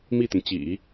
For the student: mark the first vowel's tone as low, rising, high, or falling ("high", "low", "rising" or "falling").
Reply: falling